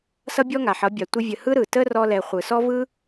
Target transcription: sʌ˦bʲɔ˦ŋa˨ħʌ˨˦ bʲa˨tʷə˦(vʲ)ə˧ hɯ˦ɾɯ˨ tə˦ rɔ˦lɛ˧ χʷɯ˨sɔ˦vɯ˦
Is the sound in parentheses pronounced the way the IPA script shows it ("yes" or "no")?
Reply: yes